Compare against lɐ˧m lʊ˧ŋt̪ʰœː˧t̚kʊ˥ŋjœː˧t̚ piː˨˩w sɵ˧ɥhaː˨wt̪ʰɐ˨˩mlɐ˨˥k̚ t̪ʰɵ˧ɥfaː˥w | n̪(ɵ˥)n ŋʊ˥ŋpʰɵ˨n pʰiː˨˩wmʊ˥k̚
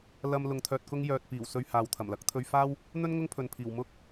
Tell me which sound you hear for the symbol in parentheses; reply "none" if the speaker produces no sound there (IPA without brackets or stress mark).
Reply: ɵ˥